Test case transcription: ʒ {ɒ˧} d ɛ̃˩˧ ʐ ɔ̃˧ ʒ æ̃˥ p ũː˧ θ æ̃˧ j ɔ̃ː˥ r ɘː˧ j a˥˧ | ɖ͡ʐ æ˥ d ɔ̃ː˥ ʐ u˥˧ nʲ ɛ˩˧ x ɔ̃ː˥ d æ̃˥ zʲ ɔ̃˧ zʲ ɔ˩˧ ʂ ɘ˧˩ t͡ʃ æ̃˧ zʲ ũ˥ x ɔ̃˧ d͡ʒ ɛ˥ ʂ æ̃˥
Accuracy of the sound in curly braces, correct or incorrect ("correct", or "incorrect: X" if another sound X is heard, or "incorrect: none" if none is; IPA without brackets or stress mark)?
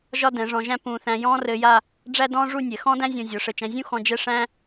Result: incorrect: ɒ˥